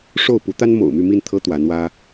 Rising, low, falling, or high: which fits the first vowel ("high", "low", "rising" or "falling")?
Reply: falling